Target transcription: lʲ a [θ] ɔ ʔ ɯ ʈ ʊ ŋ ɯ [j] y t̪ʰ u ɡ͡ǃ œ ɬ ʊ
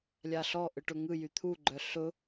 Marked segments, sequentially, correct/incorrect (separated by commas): incorrect, correct